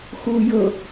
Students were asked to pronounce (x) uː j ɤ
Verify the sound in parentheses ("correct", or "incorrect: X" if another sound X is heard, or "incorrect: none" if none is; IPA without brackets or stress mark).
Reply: correct